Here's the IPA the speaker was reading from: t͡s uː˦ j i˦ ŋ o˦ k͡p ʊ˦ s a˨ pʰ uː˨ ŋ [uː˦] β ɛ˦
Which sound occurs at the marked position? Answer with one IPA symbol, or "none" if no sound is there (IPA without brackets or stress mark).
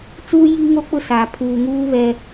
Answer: uː˦